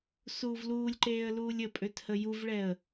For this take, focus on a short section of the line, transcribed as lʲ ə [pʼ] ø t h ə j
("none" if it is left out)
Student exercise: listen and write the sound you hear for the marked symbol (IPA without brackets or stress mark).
pʼ